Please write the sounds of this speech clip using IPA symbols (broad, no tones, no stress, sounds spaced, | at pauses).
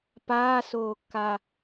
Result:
p aː s oː kː a